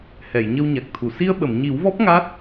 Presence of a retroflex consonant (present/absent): absent